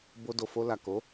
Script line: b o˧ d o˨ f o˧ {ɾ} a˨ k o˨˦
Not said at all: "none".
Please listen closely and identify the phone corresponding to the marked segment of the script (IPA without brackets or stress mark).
l